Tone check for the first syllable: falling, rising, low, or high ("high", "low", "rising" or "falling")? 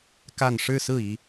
falling